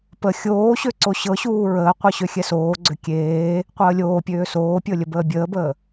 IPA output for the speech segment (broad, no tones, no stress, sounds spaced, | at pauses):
p ə xʲ oː ɕ ø ǀ o ɕ ɤ ɕ uː ɹ əː qʷ ɨ ɕ ø xʲ ɛ s oː ɡ͡ǀ ø kʲ eː | qʷ əː lʲ oː pʲ øː s oː pʲ ɤ lʲ ə b əː bʲ əː b əː